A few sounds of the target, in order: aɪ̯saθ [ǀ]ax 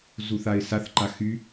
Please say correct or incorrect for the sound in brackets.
incorrect